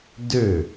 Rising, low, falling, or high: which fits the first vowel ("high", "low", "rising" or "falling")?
falling